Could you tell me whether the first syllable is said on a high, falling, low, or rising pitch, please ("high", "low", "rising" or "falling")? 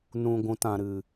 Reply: low